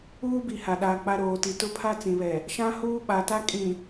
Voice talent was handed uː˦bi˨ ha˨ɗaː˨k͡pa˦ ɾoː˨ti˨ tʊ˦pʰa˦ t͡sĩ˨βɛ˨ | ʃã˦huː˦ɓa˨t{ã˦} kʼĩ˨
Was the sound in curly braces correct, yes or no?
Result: no